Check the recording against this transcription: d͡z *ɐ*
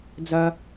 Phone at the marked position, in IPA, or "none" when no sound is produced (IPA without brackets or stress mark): ɐ